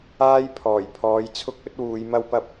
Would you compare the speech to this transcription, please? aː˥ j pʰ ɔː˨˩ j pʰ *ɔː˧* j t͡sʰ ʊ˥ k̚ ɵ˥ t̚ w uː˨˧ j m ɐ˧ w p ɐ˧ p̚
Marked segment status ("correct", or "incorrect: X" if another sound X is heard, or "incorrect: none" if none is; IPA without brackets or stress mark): incorrect: ɔː˨˧